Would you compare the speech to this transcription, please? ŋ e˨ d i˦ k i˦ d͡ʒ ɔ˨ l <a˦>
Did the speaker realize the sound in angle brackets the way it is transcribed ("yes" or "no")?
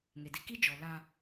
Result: no